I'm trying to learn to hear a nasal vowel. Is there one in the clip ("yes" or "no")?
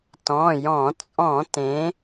yes